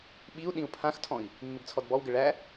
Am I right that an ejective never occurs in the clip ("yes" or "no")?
yes